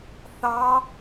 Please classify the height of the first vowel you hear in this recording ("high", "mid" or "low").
low